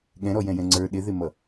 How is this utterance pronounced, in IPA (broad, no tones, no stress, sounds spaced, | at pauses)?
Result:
ɠ ɛ̃ ɾ ɔ j ɛ̃ j ɛ̃ ŋ͡ǀ ə˞ ɗ ɪ ð ɪ m ʌ